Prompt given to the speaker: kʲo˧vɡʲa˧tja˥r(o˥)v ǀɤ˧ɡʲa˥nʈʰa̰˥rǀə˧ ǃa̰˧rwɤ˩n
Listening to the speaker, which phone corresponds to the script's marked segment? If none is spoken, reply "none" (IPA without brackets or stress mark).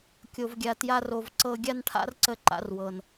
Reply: o˧